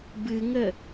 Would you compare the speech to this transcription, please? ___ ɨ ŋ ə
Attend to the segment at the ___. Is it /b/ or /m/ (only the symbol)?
b